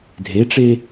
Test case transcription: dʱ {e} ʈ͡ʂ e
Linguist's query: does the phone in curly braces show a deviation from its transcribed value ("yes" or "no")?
no